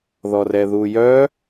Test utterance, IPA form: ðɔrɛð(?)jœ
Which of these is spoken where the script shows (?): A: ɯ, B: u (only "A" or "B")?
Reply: B